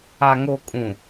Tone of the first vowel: low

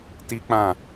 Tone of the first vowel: high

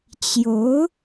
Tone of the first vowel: rising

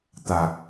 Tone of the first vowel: low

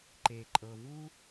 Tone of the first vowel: low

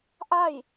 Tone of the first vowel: falling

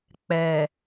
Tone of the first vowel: low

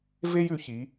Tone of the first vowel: high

